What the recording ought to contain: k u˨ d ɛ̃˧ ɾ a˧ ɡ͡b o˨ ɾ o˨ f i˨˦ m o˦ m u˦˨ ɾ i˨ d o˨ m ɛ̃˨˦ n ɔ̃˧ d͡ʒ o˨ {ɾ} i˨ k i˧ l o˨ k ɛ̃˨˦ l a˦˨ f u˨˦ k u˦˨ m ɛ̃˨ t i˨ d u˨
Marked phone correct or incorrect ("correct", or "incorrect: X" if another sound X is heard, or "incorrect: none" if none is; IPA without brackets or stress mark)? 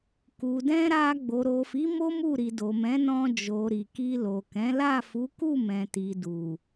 correct